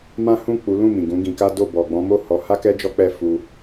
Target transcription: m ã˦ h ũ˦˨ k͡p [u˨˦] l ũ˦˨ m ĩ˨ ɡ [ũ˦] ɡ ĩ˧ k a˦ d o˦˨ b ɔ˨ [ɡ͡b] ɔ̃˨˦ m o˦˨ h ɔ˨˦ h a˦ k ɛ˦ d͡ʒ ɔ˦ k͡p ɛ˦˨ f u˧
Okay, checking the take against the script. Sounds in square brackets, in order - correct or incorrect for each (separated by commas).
correct, incorrect, correct